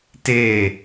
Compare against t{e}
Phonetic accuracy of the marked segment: correct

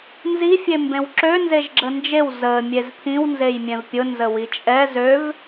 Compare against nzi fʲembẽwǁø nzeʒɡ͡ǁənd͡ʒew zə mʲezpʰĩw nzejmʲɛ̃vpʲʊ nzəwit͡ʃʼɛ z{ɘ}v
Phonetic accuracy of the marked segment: incorrect: ø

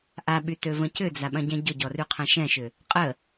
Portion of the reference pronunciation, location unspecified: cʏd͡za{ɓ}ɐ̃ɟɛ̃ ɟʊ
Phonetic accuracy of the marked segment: correct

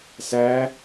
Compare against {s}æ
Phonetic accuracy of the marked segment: correct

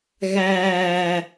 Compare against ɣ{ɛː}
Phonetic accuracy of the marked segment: incorrect: æː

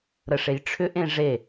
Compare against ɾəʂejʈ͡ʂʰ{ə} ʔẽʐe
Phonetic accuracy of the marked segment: incorrect: ʏ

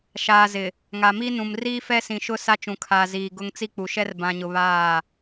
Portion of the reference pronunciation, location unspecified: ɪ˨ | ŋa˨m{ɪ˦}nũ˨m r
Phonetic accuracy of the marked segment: incorrect: i˦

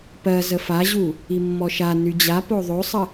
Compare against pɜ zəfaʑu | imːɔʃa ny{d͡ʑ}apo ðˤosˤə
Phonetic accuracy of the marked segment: correct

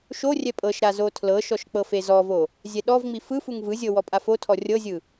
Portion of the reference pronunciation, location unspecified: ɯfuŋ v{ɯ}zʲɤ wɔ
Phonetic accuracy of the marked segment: correct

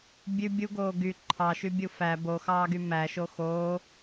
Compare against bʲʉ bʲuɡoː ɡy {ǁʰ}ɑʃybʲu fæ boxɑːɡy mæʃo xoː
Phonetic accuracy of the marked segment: incorrect: ǃʰ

